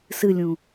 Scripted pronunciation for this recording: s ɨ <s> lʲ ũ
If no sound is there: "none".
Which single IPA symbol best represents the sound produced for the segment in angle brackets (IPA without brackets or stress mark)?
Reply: none